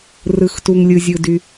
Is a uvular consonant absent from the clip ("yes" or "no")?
yes